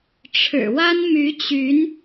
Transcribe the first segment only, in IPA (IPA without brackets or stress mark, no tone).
ʈ͡ʂʰ